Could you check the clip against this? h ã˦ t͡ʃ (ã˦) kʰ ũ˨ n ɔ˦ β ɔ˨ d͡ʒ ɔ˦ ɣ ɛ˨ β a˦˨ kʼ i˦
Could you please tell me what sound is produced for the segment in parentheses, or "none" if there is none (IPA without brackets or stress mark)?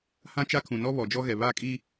a˦